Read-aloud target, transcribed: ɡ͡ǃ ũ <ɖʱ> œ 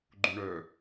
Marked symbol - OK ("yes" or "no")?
no